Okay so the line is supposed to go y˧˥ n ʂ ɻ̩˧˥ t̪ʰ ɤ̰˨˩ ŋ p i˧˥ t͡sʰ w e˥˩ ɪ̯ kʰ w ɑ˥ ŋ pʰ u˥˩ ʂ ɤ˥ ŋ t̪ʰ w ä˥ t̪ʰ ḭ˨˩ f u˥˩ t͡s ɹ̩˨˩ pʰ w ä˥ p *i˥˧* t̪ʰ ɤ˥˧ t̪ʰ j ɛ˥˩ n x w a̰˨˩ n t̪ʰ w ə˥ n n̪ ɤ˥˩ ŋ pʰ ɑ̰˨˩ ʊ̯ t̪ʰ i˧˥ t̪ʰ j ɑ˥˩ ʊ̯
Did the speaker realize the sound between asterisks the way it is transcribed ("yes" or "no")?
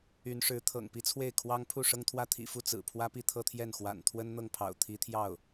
yes